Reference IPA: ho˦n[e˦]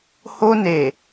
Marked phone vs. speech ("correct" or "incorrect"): incorrect